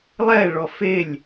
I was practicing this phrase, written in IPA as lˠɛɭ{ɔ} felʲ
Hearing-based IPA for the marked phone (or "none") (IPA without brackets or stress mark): ɔ